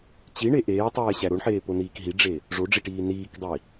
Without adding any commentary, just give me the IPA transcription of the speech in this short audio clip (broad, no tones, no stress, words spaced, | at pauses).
t͡ɕiɳe ʔeːtˤeːɕæ ɾoɳħeːponiːk ɦiɖ͡ʐe | ʐoɖ͡ʐiʈiː niːkdˤi